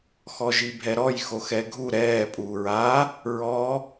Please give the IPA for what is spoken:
xɔʒibʱɛɾɔj xoxɛɡʱu ɾɛː pʼuːɹaː | ɹɔː

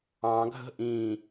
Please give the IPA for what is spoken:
ɑ̃ɡʱə̤ ʔĩ

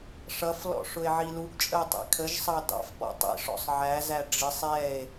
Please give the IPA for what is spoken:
ʂʌflɔ̰ ʂʊe̯ʕiluɡt͡ʃʼəo̯ tˤḭkʰəʒsˤɑ dɑ̰fpɔ̰ tˤḭʂɔ̰sˤ ʕæzæ ɖ͡ʐɪsˤ ɛe̯

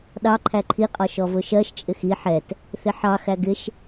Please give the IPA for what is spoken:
ɗɑ ǃʰæǃʰiqʼɒ ʃɔvʊʃɜʃ t͡ʃʼɪxi ħɛt | θɪħɑ xæɡɪʃ

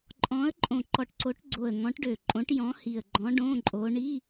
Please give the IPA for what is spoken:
ǃʼɔ̃˨˦ə̯ǃʼõ˨˩ ǃɔ˨˩ʈǀo˨˦ʈɡ͡ǀo˨˩ə̯ ŋɔ̃˨˦ʈɖø˨˩ǃʼõ˨˦ʈ jɔ̃˨˦hi˨˩ə̯ɡ͡ǃɔ̃˨˦ ɖõ˧˥˧ǃʼo˨˦ ɳi˧˥˧

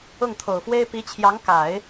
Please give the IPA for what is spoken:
ʊ˥˩ŋt̪ʰo˨˩ʊ̯fwe˥ɪ̯ pi˧˥t͡ɕʰjɑ˧˥ŋ ka˨˩˦ɪ̯

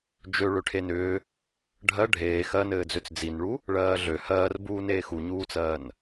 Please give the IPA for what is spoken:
d͡ʒø ɭøʈʰenʏː | ɖʱɜ ɖʱeː xɜnɘːd͡zøt͡s d͡zinɭu | ɭɜːɮø hɜːrbuː neːxuɲuːt͡sɜːn

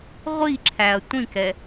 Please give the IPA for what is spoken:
ʁʷiǁʰæɐ̯ tʷĩkɛ

